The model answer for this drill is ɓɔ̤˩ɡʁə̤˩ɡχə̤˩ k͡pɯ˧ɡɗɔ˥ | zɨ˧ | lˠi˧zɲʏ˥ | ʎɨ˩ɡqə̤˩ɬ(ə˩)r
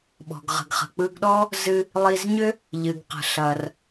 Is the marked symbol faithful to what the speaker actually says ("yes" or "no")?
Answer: no